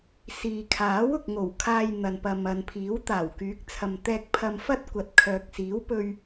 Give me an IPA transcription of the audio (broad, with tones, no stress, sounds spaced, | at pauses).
s iː˨ kʰ aː˨˥ w ʊ˨ k̚ ŋ o˨˩ w kʰ aː˧ j n̪ ɐ˨ n p ɐ˨ m ɐ˨ n pʰ iː˨˥ w t̪ aː˨˩ w k yː˨˥ k̚ t͡sʰ ɐ˨ m t̪ ɛː˧ k̚ pʰ ɐ˧ m f ɐ˥ t̚ kʷ ɐ˨ t̚ kʰ œː˨ k̚ s iː˨˥ w p ɵ˧ ɥ